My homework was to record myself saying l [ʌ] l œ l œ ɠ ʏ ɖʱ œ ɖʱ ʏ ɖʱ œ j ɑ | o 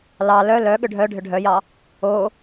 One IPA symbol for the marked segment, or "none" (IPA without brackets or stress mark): ɑ